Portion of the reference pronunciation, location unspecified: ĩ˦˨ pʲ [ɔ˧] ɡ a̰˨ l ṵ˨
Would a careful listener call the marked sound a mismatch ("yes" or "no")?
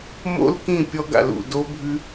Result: no